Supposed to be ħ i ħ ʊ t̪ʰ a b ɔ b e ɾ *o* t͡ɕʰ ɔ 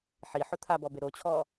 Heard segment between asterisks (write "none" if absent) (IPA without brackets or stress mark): o